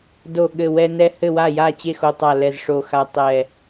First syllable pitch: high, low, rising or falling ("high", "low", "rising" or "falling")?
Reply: falling